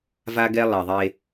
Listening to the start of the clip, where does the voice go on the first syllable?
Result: high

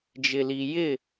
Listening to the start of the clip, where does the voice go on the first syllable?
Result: low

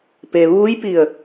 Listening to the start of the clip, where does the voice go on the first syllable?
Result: low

